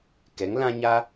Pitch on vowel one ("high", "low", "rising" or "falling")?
rising